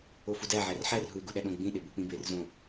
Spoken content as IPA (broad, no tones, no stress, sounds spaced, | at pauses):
o f u d æ ʕ æ r ħ æ r ɦ u e̯ ɡ u ɗ æ ɗ õ ɡ͡b ĩ ɗ e b u k͡p ĩ b e r z õ